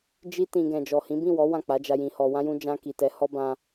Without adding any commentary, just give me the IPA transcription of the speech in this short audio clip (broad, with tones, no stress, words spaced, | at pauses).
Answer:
d͡ʒi˧tĩ˨ ɡɛ̃˨d͡ʒɔ˨hĩ˨˦ bĩ˦˨wɔ˨˦ wã˦˨k͡pa˨˦d͡ʒa˧ jĩ˧hɔ˧wã˦jũ˦ d͡ʒã˧ki˨tɛ˨˦ hɔ˦ bã˧